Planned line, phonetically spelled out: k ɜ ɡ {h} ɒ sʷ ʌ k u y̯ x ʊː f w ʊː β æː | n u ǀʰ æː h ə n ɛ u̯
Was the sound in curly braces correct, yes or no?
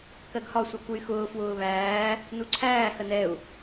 yes